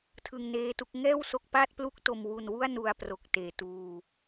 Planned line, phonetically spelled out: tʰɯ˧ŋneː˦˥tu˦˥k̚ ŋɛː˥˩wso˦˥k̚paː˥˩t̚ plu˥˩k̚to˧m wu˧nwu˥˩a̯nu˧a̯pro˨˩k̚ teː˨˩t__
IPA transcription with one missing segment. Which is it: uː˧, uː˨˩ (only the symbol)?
uː˧